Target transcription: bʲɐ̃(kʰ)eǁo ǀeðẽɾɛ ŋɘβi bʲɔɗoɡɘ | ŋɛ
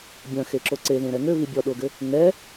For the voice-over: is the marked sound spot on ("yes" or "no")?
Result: no